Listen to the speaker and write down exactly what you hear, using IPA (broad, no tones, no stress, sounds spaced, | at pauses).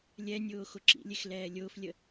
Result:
lʲ ɛ nʲ ʊː x ʊ ǁ ḭ lʲ e x l ɛː lʲ ʊː f lʲ ə